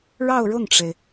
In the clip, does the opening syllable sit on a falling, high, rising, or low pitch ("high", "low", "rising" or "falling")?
falling